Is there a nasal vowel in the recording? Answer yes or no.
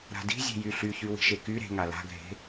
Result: no